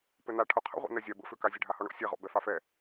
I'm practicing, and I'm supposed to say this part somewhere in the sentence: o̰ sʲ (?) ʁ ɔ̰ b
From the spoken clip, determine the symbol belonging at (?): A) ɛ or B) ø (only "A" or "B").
A